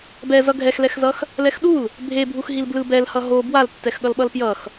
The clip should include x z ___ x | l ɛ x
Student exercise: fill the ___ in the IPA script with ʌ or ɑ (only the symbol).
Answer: ʌ